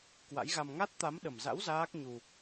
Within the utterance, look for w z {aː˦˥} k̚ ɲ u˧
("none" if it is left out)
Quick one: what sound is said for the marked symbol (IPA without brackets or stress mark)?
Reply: aː˦˥